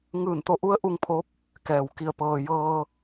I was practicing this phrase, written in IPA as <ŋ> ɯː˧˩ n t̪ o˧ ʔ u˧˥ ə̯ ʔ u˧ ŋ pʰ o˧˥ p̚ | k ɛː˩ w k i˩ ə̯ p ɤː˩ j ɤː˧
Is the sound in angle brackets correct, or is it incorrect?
correct